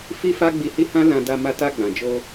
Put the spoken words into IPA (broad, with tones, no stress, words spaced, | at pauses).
fi˦fa˦ɡ͡bi˧hi˦ hã˦lã˧da˧ ma˧ta˧ɡ͡bã˨d͡ʒo˧